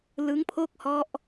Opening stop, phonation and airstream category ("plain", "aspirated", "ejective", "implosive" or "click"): aspirated